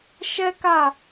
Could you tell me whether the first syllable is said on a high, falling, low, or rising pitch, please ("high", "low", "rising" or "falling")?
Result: high